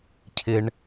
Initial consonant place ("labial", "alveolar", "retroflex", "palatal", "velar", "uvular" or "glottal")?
palatal